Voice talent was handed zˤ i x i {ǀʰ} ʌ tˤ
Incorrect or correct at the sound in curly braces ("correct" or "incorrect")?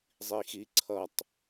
correct